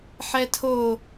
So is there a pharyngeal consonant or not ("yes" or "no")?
yes